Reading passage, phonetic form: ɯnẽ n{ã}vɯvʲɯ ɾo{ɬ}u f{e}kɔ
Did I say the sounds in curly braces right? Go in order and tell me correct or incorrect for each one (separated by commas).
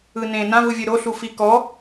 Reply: correct, correct, incorrect